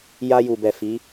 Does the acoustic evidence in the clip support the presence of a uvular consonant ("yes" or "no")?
no